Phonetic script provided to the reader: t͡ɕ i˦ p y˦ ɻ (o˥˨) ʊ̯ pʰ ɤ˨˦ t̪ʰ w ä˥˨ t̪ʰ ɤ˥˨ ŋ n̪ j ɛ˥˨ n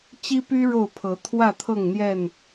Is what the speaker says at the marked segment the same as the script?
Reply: yes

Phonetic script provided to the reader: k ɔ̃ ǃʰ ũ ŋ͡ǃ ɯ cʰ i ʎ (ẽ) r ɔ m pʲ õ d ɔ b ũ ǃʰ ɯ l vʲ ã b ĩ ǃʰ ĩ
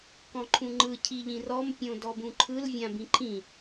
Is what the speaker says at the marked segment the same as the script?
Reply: no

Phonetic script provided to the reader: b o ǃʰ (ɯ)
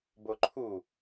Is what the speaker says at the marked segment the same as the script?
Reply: no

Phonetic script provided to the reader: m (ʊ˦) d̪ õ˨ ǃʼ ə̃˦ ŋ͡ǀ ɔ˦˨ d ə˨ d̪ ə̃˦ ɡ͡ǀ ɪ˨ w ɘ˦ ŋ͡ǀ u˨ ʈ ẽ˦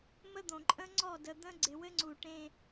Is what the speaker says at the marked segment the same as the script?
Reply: no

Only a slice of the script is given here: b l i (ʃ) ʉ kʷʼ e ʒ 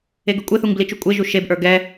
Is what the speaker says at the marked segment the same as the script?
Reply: no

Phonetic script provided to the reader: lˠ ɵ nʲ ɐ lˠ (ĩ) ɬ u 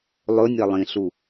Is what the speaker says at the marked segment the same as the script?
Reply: yes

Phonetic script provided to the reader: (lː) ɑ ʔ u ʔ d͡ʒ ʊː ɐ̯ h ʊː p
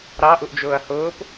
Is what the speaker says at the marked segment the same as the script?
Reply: no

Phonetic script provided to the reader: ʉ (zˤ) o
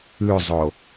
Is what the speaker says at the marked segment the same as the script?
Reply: yes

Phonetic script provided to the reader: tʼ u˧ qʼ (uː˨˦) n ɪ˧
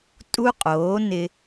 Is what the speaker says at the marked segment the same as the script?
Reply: no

